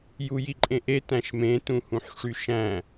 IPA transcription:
j u j i ǃʼ ẽ ʔ e t æ̃ ʃ m ẽ t ũ h ũ ħ ʂ y ʃ æ̃

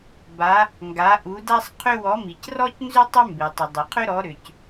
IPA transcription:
b a˨˦ | ŋ ɡ a˨˦ ʔ u˨˦ d a˥ sˤ qʰ ʏ˥ w ɔ˨˦ m i˩ c r ɔ˥ c n z ʏ˥ tˤ ʏ˥ m b e˩ tˤ ʏ˩ dˤ e˩ qʰ ʏ˥ ɾ ɔ˨˦ ɾ ʏ˩ c

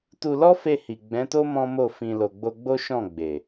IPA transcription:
t u˧ l ɔ˦ f e˧ h i˨ ɡ͡b ɛ̃˨˦ t o˦ m ɔ̃˦ m o˦˨ f ĩ˧ l o˨ ɡ͡b o˧ ɡ͡b o˦ ʃ ɔ̃˦˨ ɡ͡b e˨

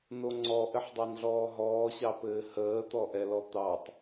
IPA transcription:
n o ŋ͡ǀ ɔ ʔ ɘ ħ dˤ ɑ n ɮ ɔː ɦ ɔː ɕ ɑ p ɘː h əː t̪ ɔ ʔ ɛ l ɔ t̪ ɑ tˤ

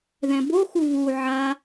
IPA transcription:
ð ɛ̃ b o x u β u ʕ a

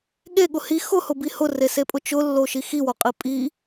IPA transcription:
ɠ e ɠ ʊ h i x ʊ h ʊ b i h ʊ r e s e pʼ ʊ t͡ʃ ʊ lː o ʃ i x i w o qʼ i pʼ i

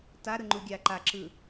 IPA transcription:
t a ɾ ɯ ŋ͡ǃ u ɡʲ a ǃ a ǁ ɯ

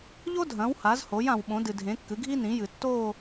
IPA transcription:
ʎ o˥ dʱ ɐ̃˩˥ w h a˩˥ z h o˩˥ j ã˨ w ɓ õ˩˥ d ɨ˨ dʱ ẽ˩˥ kː ɨ˩˥ ɡʱ i˥ n ĩ˩˥ j ɨ˨˩˦ tː o˦˨

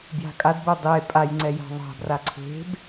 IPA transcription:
b j a̤ kʼ a d b o dˤ e pʼ a j ŋ͡ǀ ɛ j a̤ ðˤ a̤ b r a ǀʰ e̤ b

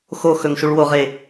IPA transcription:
x o x ɵ ŋ ʃ u ɭ w o ʁ e

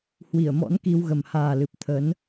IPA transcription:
h w i˧˩ ə̯ m ɔ̰˧˥ n k i˧ w ɣ ə˨˩ m h aː˨˩ l ɨ˨˩ p̚ t̪ʰ ə˨˦ n

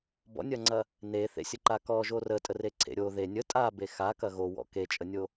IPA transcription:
b ɔ̰ nʲ ɐ ŋ͡ǀ ɐ | n e θ ḛ sʲ ə ǃ a k ɔ ʒ o r ə tʼ ə r e ǀʰ ḛ ɾʲ o ð e nʲ ə tʼ a b e x a k ɐ ɣ o w ɔ̰ k e t͡ʃʼ ə nʲ o

